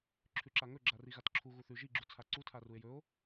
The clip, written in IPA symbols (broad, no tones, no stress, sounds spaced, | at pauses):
ǁʰ ʉ ǁ a ŋ ɵ ɡ͡ǁ a r i ɣ a t ǁʰ u ɣ u θ ʉ ʒ i ɡ͡ǁ u t͡sʰ a ǀ u tʰ a r u e̯ j ɵ o̯